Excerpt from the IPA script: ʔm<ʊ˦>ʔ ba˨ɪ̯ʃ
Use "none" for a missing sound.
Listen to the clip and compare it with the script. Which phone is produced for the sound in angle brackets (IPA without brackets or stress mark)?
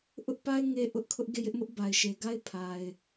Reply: ʊ˦